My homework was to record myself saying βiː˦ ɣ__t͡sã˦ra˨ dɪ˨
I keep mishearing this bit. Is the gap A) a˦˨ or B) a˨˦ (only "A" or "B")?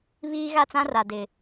A